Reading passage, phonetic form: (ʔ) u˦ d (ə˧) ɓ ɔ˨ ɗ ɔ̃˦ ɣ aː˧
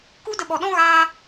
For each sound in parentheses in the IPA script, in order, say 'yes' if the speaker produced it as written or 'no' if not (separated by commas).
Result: no, yes